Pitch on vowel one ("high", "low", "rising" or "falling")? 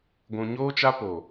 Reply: low